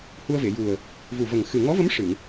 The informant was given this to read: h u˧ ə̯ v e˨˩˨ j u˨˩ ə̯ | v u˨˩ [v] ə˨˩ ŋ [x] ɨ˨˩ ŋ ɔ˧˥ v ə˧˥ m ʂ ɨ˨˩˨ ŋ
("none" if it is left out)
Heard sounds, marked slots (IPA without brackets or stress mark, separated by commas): v, x